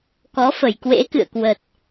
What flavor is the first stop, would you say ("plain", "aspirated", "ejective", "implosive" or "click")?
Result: plain